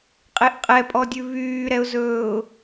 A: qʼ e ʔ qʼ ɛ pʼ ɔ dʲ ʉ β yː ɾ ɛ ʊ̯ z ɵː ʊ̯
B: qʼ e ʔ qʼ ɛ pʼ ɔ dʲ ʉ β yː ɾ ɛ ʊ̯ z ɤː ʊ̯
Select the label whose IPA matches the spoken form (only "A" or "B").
A